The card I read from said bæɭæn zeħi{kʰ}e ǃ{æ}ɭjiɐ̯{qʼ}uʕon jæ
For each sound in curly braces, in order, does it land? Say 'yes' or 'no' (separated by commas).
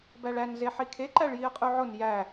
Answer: yes, yes, yes